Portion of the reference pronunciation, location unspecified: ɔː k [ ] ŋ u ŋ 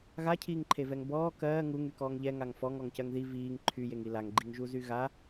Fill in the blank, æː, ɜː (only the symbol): ɜː